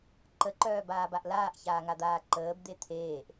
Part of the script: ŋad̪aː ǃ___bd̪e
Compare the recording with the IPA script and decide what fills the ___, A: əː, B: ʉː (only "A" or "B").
A